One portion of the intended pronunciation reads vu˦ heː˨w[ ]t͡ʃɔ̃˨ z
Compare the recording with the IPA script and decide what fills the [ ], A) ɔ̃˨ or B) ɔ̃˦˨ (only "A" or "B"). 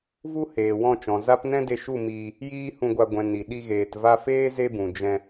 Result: B